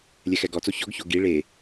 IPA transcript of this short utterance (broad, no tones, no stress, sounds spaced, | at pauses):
lʲ ɛ x ɛ ɡ ɔ t͡s o ç ɔ ɡ ç o ɡ i ɭ e